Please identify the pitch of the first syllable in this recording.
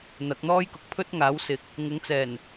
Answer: rising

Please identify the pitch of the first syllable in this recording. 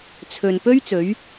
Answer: low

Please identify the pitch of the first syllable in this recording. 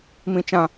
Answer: low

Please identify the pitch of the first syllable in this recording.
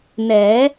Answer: rising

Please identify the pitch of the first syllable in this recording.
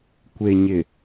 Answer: low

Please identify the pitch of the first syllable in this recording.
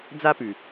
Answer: high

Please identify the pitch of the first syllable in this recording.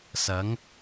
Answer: rising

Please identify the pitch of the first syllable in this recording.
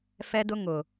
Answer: high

